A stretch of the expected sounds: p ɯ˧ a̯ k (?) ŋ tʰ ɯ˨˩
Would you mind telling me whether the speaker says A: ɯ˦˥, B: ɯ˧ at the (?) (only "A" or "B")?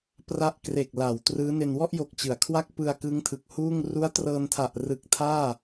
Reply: A